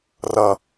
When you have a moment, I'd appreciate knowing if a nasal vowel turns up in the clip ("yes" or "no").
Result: no